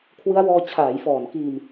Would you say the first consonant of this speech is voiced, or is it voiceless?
voiceless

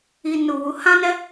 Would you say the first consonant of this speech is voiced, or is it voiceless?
voiced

